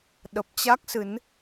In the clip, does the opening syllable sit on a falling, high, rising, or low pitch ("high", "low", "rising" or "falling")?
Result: low